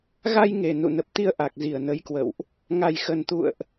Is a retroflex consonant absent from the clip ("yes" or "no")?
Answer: yes